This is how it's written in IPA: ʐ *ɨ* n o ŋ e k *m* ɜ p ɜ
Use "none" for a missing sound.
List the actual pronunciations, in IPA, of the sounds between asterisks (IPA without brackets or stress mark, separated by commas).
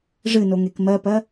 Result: ɨ, m